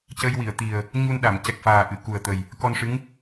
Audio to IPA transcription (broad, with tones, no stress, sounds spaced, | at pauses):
c ə˧ j w i˨˩˨ ə̯ t̪ i˨˩ ə̯ | ɲ u˧ n ɗ a˨˩˨ m c ɛ˨˩ k̚ f aː˨˩ ʔ ɨ˨˩˨ k u˨˩ ə̯ t̪ ə˨˩ j | k ɔ˧ n ʂ ɨ˧˥ ŋ